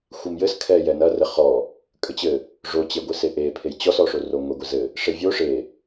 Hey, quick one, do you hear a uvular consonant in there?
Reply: yes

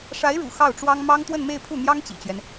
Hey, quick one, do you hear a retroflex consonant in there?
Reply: yes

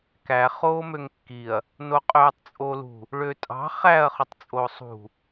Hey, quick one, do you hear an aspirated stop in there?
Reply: no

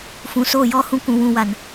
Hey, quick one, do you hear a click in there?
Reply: no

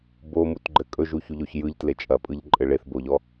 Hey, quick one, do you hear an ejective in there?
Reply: yes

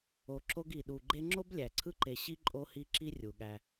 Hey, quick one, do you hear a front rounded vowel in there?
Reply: no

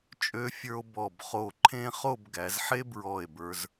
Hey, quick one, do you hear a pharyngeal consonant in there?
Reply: yes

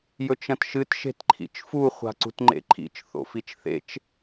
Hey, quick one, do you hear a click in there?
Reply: yes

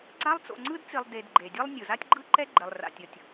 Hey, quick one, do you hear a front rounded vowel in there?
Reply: no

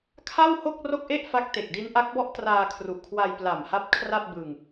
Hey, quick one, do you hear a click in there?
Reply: no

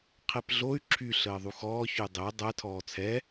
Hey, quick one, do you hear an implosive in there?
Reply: no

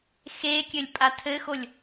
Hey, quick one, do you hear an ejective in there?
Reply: yes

